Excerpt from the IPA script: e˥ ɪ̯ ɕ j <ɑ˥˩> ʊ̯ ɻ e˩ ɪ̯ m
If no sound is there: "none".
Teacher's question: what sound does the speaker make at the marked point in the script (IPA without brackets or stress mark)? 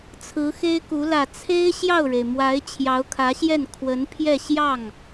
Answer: ɑ˥˩